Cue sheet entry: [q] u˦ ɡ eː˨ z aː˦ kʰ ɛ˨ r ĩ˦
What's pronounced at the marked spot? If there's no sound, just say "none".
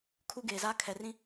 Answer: kʰ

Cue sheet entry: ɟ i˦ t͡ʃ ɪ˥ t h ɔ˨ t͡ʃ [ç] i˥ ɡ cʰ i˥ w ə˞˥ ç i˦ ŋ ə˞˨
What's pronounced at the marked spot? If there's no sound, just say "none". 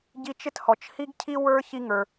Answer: h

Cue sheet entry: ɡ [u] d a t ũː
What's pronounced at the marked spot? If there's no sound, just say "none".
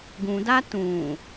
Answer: ũ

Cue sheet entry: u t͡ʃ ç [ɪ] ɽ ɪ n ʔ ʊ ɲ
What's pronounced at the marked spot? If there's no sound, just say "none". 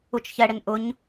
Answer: ɛ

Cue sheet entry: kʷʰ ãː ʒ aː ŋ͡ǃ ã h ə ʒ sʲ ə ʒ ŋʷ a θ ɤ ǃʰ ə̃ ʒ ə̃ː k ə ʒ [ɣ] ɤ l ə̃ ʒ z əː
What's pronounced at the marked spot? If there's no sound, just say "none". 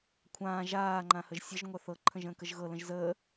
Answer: ɣ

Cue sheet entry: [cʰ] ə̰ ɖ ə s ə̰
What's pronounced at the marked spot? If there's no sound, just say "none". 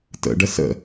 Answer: t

